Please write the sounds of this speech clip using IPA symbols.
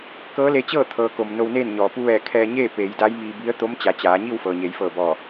kɤː˧˥le˧t͡ɕɤː˥˨t̪ʰɤː˩˧ ko˩m no˧wneː˥˨nɲɔː˩ pu˧ʋɛː˧˩ kʰɛː˧ɲeː˥˨ peː˩˧jda˧˥jmiː˧bi˧˥ə̯ t̪o˧˥mt͡ɕa˩˧ t͡ɕaː˩˧ɲi˥˨w fɤː˩ɲeː˩˧jfɤː˧˩bɔː˧˩

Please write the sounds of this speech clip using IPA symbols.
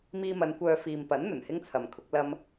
miː˧mɐ˨˧n kʷœː˧ fiː˨mpɐ˨˥n n̪ɵ˨˩nhɪ˥ŋt͡sʰɐ˨mkʰʊ˨˥k̚ lɐ˧m

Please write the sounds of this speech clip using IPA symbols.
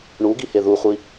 ɳuɡihe ðuχʷi

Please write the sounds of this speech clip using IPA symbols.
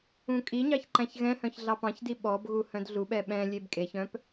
ũkʼiɲɑç ǃæ̃çɣɛ̃hœ̃ç ɮɑpɑ̃çdi ɓɔbɣu hœ̃dɮuɓɛ ɓɛ̃ lʲebkʼeçœ̃p

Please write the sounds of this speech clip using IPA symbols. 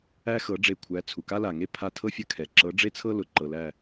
æ˦xɤ˨˦ɖ͡ʐe˧˩kʷʰæ˨˦ t͡sʰu˩ka˦la˩ŋe˦ pʰa˧˩tʰɤ˦fʲə˧˩kʰɛ˩ ǁɤ˨˦ɖ͡ʐe˦t͡sʰɤ˦ lʊ˩ ǃɤ˩læ˧˩

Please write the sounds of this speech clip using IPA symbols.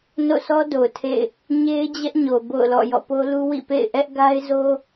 no̰˦˨sʰɔ˦do˨ʊ̯ tʰḛ˦˨ɪ̯ | ɲe˦ɪ̯d͡ʑɛ˦ʔɲo˨ bo̰˦˨ʊ̯lɔ̰˦˨ jɔ̰˦˨po˦lu˦ wḭ˦˨pḛ˦˨ɪ̯ ʔɛ˦ʔ ɡa˦ɪ̯zo˦

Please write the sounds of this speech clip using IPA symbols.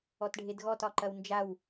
ɔtɖʱedɣɔt ɒǃɐwnd͡ʒaw

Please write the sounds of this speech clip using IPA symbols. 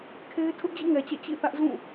kʰe˦ɪ̯ tʰʊ˦ʔd͡ʑḭ˦˨ŋɛ˨t͡ɕɛ̰˦˨ t͡ɕḭ˦˨θä˦ʔ zũ˦˨

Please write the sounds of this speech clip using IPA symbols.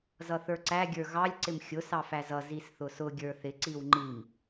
zʌθə˞ǀæ ɡʲə˞ɣɑlʲ ǀɪmxʲʊ sɑfæzʌ zisθʊsʊ ɡʲə˞θɪ ǀiwŋ͡ǃim

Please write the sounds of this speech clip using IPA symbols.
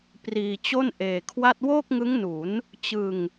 priː˧t͡ɕo˥˩nʔeː˧kʰwa˥˩t̚ woː˥˩k̚ŋɯ˦˥ŋnu˩˦n | t͡ɕɯ˧ŋ

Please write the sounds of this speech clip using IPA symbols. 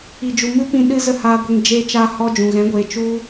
i˨d͡ʒu˨ mɨ˦pĩ˧ ɗɨ˦zə˦˨haː˧ɡʷe˧ŋ d͡ʒeː˧t͡ʃaː˧ hɔ˦d͡ʒũ˨ ɣɛ̃˨˦ɡʷeː˨ t͡ʃu˦

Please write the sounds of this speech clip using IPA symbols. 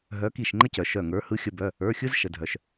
ɦœ˨˦ki˧˩ʃŋ͡ǃə˦cœ˩ ʃœ˧˩ŋə˞˨˦ hɯ˨˦xʲə˩˧˩bœ˩˧˩ | ə˞˩˧˩xʲɯ˦zʃə˩dʱœ˩ʃ

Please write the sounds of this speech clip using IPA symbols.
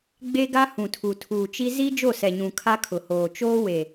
ɡ͡be˦ɡa˦ hũ˨tʰu˨tʰuː˨t͡ʃi˦ zi˦ d͡ʒo˦˨sɛ˨ɲũ˨ kʰa˦kʰʊ˨hoː˨ t͡ʃoː˦we˨

